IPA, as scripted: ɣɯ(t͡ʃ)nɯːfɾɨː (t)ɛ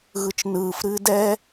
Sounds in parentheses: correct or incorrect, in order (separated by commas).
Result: correct, incorrect